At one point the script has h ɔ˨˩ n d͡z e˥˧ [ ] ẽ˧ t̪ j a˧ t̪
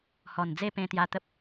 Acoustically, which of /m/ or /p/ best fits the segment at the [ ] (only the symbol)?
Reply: p